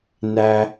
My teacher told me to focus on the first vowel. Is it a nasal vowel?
no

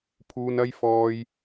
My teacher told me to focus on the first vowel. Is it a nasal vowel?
no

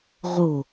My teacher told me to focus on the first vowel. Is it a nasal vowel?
no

